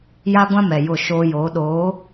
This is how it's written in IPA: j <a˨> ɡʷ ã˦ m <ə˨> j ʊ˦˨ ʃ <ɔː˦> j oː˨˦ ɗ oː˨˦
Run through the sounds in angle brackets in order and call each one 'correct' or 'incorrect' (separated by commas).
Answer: incorrect, incorrect, incorrect